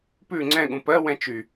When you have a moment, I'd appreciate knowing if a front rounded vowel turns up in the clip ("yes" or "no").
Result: yes